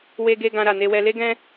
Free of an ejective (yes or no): yes